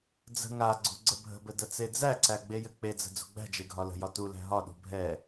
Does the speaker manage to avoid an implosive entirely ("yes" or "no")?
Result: no